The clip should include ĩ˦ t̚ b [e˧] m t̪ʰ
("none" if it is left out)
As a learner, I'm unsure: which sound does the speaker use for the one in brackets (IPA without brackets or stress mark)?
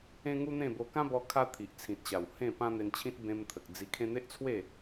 ẽ˧